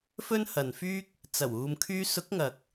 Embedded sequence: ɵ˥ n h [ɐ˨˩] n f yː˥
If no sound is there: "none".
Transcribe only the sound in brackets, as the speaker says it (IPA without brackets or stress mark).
ɐ˨